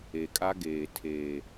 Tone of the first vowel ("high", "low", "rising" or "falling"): low